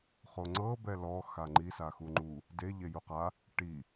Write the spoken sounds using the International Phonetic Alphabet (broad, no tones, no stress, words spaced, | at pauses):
χoŋ͡ǀɤ bɛlɔ xaŋ͡ǃi saxuŋ͡ǃu | de ʎejuqa | ʈi